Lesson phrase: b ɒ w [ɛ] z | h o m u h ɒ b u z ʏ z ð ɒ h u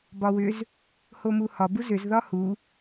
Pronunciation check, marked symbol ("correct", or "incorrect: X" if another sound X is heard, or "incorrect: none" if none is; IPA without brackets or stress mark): incorrect: ʏ